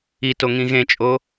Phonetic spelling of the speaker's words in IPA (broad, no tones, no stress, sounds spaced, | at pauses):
i t o ŋ ĩ ɣ ẽ t͡ʃʼ o